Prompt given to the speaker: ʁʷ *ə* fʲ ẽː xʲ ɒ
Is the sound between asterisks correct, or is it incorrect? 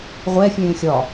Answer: incorrect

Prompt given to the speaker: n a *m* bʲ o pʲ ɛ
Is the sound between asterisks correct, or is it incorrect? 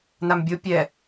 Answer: correct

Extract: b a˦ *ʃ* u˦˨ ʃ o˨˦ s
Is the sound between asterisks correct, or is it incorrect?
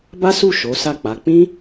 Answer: incorrect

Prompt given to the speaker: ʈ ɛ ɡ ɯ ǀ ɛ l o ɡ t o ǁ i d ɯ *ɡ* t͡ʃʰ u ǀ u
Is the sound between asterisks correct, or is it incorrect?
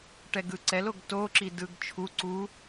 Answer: correct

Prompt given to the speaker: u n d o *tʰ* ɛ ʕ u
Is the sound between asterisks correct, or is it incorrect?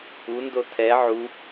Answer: correct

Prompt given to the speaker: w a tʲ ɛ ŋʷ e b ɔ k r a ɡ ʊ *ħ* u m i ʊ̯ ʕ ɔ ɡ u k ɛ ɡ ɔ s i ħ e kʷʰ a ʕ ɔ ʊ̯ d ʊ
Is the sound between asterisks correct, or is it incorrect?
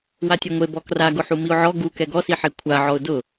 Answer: correct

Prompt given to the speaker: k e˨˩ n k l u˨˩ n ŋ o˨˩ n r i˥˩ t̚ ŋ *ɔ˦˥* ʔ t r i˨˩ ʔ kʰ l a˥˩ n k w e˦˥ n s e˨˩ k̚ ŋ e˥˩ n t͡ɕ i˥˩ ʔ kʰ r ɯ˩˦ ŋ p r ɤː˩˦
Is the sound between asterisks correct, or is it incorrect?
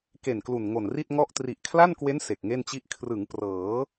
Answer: correct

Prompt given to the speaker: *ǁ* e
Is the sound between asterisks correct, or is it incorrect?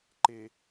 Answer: incorrect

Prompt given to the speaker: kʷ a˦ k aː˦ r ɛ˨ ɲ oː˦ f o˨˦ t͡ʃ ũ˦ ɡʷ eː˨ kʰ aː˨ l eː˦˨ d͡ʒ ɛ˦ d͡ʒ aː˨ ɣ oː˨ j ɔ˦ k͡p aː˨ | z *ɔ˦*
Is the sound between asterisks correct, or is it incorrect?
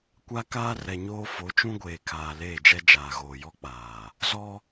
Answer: correct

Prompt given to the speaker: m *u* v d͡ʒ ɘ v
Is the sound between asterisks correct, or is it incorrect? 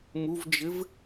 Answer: correct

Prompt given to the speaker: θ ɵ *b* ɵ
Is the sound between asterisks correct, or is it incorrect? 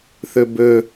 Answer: correct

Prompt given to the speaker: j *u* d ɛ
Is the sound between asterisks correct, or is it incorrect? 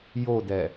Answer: incorrect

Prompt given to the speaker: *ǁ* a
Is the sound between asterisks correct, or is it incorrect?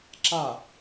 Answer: correct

